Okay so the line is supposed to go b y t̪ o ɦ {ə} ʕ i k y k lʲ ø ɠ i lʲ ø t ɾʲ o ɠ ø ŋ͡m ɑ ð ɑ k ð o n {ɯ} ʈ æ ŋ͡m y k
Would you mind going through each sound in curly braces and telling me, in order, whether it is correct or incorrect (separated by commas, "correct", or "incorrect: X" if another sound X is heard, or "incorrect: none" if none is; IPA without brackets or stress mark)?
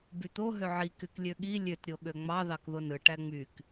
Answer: incorrect: ø, correct